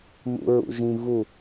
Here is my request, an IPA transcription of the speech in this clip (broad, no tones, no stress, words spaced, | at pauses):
mṵɹṵʒĩ vu